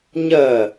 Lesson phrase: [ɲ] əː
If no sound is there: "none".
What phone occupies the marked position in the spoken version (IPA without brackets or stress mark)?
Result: ɲ